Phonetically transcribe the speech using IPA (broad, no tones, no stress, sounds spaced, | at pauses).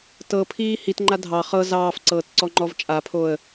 t ɤ pʰ iː h i t ŋ͡ǃ a dʱ ɑ χ ɤ z ɑː f ǀ ɤː t ǀ ɔ ŋ͡ǃ ɔ v t͡ʃʼ a pʰ o ə̯